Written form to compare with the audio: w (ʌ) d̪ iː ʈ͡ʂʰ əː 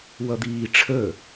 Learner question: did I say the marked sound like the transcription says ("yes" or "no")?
yes